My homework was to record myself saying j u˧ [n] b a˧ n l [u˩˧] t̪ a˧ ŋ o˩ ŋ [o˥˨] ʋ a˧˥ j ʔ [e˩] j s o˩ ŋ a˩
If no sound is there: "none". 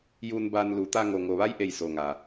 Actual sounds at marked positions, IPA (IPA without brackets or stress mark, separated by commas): n, u˩˧, o˩, e˩